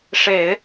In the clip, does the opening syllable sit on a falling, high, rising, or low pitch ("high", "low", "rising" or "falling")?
low